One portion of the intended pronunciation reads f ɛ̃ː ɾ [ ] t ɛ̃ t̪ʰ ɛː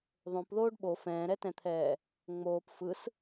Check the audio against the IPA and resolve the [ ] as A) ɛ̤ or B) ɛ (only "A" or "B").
B